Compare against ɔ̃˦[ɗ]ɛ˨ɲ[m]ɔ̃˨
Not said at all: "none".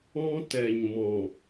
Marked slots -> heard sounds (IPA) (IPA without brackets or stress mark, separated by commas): t, m